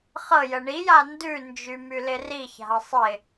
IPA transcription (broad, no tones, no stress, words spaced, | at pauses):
χɤjə ɳija ndʉnd͡ʒy mylɪriça̤ə̯ sˤɪ